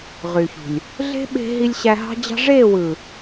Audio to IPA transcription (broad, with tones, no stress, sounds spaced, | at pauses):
ʁ y˨ ç ṳ˨ lʲ | ɮ e̤˦ ɓ e̤˧ ɦ i˧ lʲ ɕ æ˧ ɦ ɑ̤˦ d͡ʑ ɑ̤˦ ʐ e˦˨ w ɯ˨